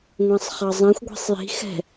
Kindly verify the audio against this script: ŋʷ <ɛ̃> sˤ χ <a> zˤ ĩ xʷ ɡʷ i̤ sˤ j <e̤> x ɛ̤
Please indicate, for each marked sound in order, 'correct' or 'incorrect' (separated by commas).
correct, incorrect, incorrect